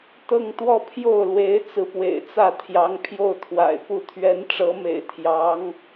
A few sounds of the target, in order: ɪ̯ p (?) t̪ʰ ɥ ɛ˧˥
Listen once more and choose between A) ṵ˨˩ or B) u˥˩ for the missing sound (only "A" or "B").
B